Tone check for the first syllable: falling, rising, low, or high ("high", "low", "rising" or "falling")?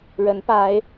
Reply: rising